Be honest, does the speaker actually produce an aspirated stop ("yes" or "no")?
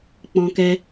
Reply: no